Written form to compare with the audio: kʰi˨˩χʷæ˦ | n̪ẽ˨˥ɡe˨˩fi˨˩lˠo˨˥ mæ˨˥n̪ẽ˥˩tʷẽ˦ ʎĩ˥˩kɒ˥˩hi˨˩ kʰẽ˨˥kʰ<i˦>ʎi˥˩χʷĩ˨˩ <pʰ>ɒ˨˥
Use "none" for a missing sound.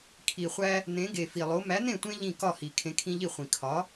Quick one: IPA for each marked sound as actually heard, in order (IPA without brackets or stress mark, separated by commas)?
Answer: ĩ˦, kʰ